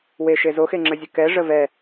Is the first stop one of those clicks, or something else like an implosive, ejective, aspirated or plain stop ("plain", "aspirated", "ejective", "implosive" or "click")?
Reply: click